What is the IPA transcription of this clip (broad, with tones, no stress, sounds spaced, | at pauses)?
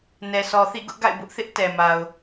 n ɛ˨ s ɔ˨ θ ḭ˦˨ ɡ ʊ˦ ʔ ɡ a̰˦˨ ɪ̯ b ʊ˦ ʔ θ ɪ˦ ʔ t ɛ˨ m a˨ ʊ̯